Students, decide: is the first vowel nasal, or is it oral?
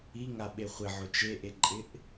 oral